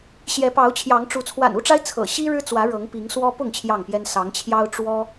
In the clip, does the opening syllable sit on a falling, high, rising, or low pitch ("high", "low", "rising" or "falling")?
rising